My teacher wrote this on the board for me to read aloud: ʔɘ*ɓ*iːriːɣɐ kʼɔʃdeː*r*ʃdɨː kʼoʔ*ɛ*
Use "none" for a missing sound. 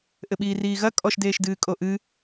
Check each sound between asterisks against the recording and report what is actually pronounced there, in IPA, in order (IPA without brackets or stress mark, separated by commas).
ɓ, none, ɨ